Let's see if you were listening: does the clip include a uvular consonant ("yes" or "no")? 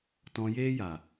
no